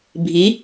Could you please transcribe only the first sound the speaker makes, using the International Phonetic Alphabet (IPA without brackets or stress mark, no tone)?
bʱ